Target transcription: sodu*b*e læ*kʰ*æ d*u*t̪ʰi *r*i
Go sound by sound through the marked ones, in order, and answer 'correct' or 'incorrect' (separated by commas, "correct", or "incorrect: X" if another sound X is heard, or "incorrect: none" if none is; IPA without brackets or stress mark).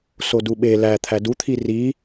incorrect: ɓ, incorrect: t̪ʰ, correct, correct